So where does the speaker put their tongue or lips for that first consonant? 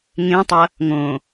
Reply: velum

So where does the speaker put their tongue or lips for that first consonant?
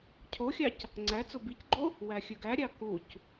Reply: palate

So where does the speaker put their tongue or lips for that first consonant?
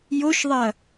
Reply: palate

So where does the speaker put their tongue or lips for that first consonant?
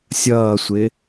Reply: tongue tip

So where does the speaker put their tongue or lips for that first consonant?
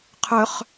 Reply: uvula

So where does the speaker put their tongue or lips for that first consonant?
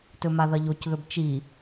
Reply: tongue tip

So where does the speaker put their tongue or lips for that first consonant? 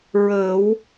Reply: tongue tip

